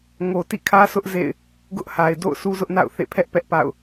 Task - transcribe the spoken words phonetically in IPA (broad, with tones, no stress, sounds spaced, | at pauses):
ŋ o˨ t ḭ˦˨ kʰ ä˦ s ʊ˦ ʔ z ḛ˦˨ ɪ̯ | ɡ ʊ˦ ʔ h a˨ ɪ̯ d o̰˦˨ ʊ̯ s u˦ z ʊ˦ ʔ n a̰˦˨ ʊ̯ θ ḛ˦˨ pʰ ɛ˦ ʔ p ɛ˦ ʔ p a̰˦˨ ʊ̯